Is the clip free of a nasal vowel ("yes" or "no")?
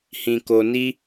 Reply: no